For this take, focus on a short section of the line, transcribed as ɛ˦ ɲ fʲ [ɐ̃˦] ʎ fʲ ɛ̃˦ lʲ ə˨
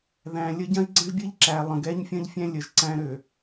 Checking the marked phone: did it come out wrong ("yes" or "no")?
no